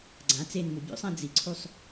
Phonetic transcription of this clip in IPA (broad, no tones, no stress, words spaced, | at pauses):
ɡ͡ǀã t͡senmu bʲṵsˤã d͡ziǀʰusˤ